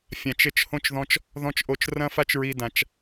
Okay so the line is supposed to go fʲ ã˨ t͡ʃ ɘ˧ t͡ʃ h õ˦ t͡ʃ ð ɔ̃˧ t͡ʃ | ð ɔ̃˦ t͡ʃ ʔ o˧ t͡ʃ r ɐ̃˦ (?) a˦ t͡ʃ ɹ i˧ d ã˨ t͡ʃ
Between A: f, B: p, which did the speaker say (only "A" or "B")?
A